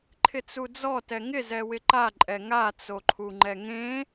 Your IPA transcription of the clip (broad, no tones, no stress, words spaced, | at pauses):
ǃʰɪt͡sud͡zɔ tɛŋɪ zɛwɪǃa ǃʼɛŋa t͡soǃʰuŋ͡ǃɛŋẽ